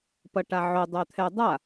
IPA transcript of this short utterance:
p ʌ ʈ a ʕ o dˤ œ t̪ʰ ɛ dˤ a

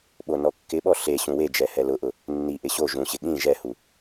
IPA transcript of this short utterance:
ɓ o n ɔ kː ɪ ɓ ɔ ɬ e ɕ ũ w e d͡ʒ ɛ h ɛ l ʊ ʔ ʊ | nː i ʔ ɪ ɕ o ʒ ũ ɕ ɪ ɠ ĩ ʒ ɛ h u

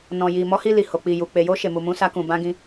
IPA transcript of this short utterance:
n ɔ̃˨ j i˨ m ɔ˨˦ h i˧ l i˨ h o˨ k͡p i˨ j u˨ k͡p e˨ j o˧ ʃ e˨ m u˨ m ũ˨˦ s a˧ k ũ˨ b ã˧ ɡ ĩ˧

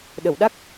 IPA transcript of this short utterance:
ɗ ə˨˩˨ w ɗ a˦˥ k̚

